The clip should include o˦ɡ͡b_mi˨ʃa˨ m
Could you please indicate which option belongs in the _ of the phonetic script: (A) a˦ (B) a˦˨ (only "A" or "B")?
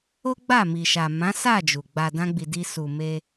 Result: B